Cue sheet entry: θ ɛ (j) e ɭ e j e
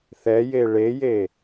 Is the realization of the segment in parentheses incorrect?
no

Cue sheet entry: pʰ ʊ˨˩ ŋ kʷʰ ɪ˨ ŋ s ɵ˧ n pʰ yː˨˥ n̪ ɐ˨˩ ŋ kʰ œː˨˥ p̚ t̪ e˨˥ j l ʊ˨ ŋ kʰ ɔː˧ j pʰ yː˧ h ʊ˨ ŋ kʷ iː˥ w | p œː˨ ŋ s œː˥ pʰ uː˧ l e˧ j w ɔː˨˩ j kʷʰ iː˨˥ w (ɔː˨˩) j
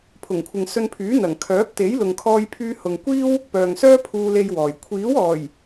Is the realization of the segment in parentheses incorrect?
no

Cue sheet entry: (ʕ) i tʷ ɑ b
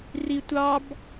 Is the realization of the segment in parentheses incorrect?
yes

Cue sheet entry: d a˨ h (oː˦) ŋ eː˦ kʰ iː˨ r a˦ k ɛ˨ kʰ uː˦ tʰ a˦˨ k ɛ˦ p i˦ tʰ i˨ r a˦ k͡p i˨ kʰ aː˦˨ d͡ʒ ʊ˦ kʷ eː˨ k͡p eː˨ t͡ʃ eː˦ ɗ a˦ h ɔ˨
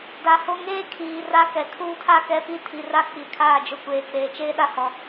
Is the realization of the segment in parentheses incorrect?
yes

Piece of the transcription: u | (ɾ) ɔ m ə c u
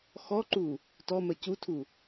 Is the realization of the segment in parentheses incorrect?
yes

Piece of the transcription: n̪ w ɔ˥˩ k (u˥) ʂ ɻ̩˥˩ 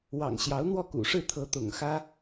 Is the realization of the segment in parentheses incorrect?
yes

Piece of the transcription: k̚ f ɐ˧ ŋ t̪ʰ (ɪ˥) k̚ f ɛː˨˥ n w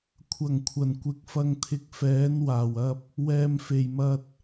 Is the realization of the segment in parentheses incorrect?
yes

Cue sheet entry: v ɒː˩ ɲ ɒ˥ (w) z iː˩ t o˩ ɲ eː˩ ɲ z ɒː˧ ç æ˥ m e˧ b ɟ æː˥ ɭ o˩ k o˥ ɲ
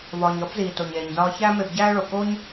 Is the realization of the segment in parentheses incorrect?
yes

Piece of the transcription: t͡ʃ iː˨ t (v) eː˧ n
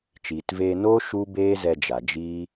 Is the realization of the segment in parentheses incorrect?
no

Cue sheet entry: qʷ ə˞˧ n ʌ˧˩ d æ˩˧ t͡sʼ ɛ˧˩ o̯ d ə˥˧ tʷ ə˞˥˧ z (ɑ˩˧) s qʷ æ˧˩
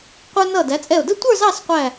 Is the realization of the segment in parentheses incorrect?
yes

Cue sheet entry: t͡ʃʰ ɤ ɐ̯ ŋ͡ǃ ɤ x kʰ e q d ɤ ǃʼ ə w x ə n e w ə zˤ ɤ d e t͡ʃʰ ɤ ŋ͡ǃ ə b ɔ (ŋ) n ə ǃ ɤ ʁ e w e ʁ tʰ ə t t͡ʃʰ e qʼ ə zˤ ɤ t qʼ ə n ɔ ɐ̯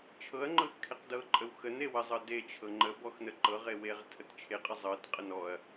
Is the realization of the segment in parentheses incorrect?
yes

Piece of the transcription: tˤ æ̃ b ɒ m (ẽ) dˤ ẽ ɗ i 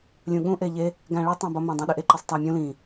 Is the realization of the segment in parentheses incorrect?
no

